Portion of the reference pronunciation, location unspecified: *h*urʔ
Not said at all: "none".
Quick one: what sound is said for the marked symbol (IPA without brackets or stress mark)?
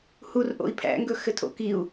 h